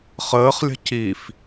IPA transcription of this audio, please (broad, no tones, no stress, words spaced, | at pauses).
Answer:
χəːχlʲə̤ cif